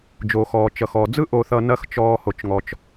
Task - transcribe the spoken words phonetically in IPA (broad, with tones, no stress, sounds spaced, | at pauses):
d͡ʒ oː˩ x ɔː˩ t͡ʃ ʌ˩ x ɔː˩ d͡z ɯ˥ ʔ o˧ θ ʌ˧ n ɐ˥ x t͡ʃ ɔː˧ h o˩ t͡ʃ ŋ ɔ˩ t͡ʃ